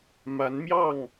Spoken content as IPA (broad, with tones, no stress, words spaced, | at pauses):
ma˨˦nmjɑ˥˨ŋ